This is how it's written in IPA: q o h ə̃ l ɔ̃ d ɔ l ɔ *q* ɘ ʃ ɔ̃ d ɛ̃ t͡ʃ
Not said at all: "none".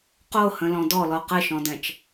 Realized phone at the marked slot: q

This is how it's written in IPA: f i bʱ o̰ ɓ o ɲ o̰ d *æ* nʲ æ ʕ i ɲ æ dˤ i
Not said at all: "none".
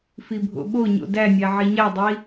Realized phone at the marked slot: æ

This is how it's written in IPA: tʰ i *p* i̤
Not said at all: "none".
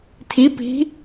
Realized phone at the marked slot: p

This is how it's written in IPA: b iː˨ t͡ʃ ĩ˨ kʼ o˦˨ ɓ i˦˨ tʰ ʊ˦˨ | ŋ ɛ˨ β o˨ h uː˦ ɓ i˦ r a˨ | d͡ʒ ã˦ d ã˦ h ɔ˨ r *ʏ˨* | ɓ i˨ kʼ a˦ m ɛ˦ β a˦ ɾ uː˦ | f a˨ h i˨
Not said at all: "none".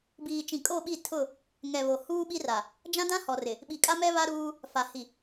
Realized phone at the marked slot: ɪ˨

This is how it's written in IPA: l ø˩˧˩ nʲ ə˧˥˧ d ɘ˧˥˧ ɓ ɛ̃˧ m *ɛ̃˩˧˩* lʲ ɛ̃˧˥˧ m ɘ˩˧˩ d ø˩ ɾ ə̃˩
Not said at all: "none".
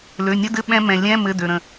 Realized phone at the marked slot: ɛ̃˩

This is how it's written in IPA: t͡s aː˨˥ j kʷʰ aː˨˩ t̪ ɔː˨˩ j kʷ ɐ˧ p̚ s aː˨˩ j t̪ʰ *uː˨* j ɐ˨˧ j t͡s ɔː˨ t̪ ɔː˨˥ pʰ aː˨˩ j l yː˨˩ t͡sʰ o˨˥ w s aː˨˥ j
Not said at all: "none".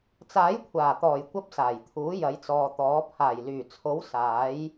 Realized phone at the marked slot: uː˨˥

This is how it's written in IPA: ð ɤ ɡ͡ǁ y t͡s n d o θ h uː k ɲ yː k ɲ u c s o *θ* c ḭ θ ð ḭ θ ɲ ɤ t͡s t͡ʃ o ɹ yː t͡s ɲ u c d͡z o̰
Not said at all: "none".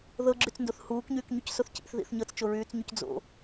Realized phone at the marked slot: θ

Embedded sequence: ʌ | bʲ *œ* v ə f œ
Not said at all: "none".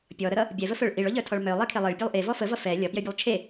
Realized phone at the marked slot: ɛ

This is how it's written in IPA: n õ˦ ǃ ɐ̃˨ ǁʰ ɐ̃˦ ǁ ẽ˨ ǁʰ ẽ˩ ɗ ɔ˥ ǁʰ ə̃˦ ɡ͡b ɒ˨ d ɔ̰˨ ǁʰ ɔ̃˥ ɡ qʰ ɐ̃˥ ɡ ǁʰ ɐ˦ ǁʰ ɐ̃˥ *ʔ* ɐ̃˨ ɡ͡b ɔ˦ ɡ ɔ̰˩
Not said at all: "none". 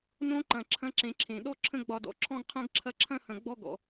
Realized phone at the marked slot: h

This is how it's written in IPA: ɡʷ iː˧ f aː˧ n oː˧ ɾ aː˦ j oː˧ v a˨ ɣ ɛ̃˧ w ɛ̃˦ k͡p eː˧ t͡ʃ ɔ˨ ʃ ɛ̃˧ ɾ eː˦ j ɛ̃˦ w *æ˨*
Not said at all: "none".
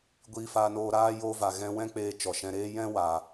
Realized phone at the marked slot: a˨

